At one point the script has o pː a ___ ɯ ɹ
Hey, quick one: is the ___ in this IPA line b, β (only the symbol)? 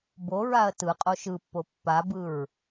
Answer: b